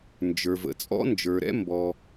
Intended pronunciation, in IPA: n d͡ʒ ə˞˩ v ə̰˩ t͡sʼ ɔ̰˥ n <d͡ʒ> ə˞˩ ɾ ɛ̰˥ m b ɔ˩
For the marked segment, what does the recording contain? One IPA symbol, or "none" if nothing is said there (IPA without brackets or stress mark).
d͡ʒ